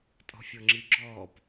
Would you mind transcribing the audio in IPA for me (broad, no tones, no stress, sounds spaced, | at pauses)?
tʼ ɔ̤ fʲ ɔ ŋ͡ǁ i ɡ͡ǁ ɔː p